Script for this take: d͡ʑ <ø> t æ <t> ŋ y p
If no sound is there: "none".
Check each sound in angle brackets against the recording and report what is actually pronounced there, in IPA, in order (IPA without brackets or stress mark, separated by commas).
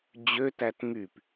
ø, t